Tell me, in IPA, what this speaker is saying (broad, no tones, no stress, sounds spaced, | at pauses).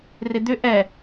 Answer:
r ɪ d̪ ʏ ʔ ɛ